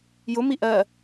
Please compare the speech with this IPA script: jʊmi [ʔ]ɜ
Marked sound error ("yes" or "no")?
no